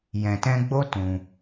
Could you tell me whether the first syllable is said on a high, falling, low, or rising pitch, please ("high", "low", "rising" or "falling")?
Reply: low